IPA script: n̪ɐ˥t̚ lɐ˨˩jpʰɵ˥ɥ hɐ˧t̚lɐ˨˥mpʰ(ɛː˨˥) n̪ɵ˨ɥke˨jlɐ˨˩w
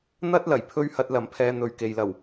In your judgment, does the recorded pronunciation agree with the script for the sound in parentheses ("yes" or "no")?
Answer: no